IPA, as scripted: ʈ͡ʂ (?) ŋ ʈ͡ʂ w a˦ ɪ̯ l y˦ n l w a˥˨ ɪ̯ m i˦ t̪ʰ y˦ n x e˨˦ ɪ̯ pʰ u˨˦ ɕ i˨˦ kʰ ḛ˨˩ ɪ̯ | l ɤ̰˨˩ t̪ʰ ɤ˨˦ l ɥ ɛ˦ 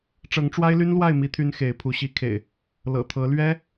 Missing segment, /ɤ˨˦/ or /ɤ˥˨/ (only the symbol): ɤ˨˦